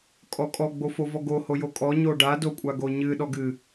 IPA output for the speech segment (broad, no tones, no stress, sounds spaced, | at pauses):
kʼ ɔ kʼ ɔ ɡ͡b o f o v ɔ ɡ o h o j o kʼ ɔ ɲ o ɖ a d o kʷʼ a ɡ o ɲ ɨ ɗ ɔ ɡ ɨ